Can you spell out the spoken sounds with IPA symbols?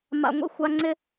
m a̰˨ ŋʷ ḭ˧ xʷ a˧ ŋ͡ǀ ɪ˦

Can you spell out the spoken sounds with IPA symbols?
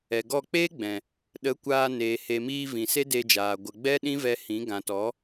ɛ˨ ɡ ɔ˦˨ k͡p eː˦ ɡ͡b ɛ̃˨ | ɗ ə˨˦ kʷ aː˧ n eː˨ h e˨ m iː˧ v ĩ˨ s e˦ d e˧ d͡ʒ aː˨ ɡʷ ə˨ ɡ͡b ɛ˦ ɗ ĩ˦ v ɛ˧ h ĩ˨˦ ɡ ã˨ t ɔ˨˦

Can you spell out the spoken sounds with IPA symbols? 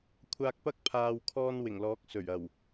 kʷʰ aː˧ k̚ p ɐ˥ k̚ pʰ aː˨ w kʰ ɔː˧ n w ɪ˨˩ ŋ l ɔː˨˥ k̚ s ɵ˨˩ ɥ ɐ˨˩ w

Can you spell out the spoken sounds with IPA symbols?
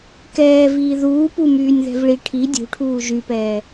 k ɛː v iː ð uː p u m yː nʲ ð ɛ̤ v ɭ i ʈʰ i dʲ ṳ ʈʰ uː ʒ y p ɛː

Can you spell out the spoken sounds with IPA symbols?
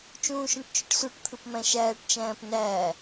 t͡ʃ ũː ʃ õ ʈ t͡ʃ ø ʈ s u ʈ t̪ʰ ɯ p m æ̃ ʃ æː ʈ t͡ʃ æ̃ː p n æː

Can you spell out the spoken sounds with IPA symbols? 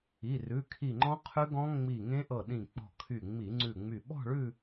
i˩˧˩ r ʉ˩˧˩ kʰ i˧˩ ŋ͡ǃ ɔ̃˦˥ qʰ ʉ˦˥ ɡ ɔ̃˦˥ ŋ͡m i˧˩ ŋ ẽ˦˥ ʔ ɤ˧˩ ɗ ĩ˧˩ k͡p ɔ̤˧˩ kʰ y˧˩ ŋ͡m i˧˩˧ ŋ͡ǀ ʉ˧˩ ŋ͡m y˧˩ ɓ ɔ̤˥˧ ɭ ʉ˥˧

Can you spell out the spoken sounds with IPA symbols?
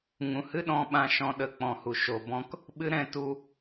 ŋ ũ˨ h ɨ˦ ɗ ɔ̃˧ ɓ ã˨ ʃ ɔ̃˨ ɗ ə˨ k͡p ɔ̃˨ h u˨ ʃ o˨ b ɔ̃˧ k | ɓ ɨ˦ ɾ ɛ̃˦˨ t u˧

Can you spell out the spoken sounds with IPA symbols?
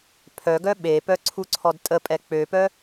pʰ œ ɡ œ ɓ e p œ ǀʰ u ǀʰ ɔ d tʼ ə pʼ ɛ k͡p ø p œ

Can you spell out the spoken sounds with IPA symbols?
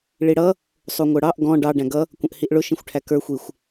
ɭ i ɽ ʌ | sˤ u ŋʷ ə˞ ɽ ɑ ʔ ɡ ɔ̃ ɖ ɑ ɖ æ̃ ɡ ʌ | kʷ ə̃ ʔ h i ʔ ɭ ʊ ʃ ĩ xʷ ʈʰ æ k ə˞ xʷ i xʷ

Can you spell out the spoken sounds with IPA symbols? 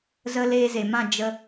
z ə˧ l eː˧ z e˨ m ã˦˨ d͡ʒ ə˧

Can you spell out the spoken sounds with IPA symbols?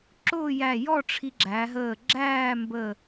ǁ ʊː˥˧ j æ˧˩ j ɔ˥˧ ʈ͡ʂʰ i˧ ɡ͡ǁ æ˩˧ ɦ əː˧˩ ɡ͡ǁ æː˥˧ m b ə˧˩

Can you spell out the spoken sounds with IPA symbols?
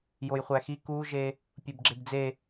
j o j χʷ æ x i k u ʒ e | pʲ u b ɡ͡ǁ e b d͡z e

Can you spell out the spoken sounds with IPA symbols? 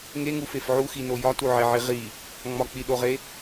ŋ e ŋ u f e f ʕ u x i n o j ɒ t u ʕ e ʕ i ʁ i | ŋ͡m ɒ k͡p i ɗ o ʁ e

